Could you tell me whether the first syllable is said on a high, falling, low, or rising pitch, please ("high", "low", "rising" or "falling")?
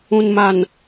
low